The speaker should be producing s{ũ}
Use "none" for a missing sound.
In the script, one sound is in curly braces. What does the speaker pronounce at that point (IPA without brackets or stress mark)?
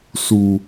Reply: u